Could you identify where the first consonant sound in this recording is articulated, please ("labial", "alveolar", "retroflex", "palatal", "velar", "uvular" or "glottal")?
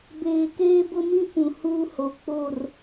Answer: labial